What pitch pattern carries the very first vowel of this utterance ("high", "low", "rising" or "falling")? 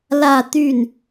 falling